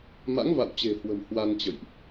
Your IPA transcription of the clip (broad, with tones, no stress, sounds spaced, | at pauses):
m a̰˧˥ ŋ v a̰˧˨ w t͡ɕ e̤˨˩ h w ə̤˨˩ m h w a˧ n t͡ɕ ə̰˧˨ j ʔ